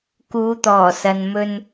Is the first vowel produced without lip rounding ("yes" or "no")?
no